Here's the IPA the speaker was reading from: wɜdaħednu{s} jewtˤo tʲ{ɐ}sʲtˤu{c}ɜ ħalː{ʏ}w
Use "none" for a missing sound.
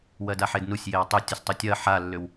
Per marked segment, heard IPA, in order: sʲ, ɐ, tʲ, ʏ

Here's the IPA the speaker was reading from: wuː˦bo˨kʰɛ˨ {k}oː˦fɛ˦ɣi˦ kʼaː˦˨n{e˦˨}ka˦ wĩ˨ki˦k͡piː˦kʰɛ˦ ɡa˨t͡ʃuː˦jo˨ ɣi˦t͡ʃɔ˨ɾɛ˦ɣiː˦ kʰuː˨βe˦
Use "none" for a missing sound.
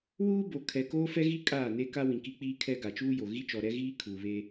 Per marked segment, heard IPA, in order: k, e˦

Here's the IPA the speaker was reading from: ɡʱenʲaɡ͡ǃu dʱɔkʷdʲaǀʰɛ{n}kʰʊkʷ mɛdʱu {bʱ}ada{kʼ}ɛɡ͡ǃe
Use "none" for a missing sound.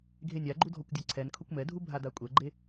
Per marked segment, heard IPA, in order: n, bʱ, kʷʼ

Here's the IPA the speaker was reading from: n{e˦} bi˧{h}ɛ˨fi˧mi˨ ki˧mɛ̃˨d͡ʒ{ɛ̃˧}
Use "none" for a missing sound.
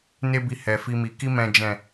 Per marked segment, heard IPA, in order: e˦, h, ɛ̃˨

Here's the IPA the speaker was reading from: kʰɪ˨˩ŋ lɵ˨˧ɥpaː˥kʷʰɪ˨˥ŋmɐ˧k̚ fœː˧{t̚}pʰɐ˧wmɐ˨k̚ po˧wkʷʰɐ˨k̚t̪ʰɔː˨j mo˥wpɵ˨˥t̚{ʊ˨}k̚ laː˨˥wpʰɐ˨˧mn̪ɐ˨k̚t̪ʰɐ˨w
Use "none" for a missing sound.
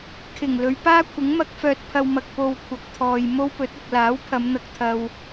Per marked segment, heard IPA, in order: t̚, ʊ˨

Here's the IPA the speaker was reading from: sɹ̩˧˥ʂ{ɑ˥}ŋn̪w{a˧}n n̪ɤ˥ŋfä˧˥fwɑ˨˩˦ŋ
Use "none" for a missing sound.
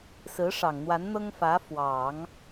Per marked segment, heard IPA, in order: ɑ˨˩, a˧˥

